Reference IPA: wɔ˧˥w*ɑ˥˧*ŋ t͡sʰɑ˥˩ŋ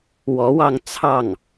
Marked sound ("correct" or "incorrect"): correct